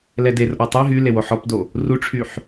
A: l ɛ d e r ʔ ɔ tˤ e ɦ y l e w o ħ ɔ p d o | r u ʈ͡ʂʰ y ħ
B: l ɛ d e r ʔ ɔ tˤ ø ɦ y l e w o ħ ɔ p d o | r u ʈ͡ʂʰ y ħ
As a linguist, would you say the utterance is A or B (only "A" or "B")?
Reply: A